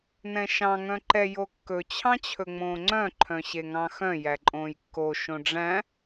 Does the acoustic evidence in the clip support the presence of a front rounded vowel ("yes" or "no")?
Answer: yes